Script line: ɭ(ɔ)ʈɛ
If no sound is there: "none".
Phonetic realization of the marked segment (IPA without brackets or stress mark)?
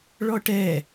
ɔ